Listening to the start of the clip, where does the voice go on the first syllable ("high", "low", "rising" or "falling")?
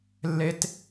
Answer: high